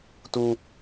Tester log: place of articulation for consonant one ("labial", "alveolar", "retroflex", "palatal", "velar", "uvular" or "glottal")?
alveolar